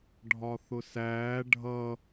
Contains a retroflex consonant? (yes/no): yes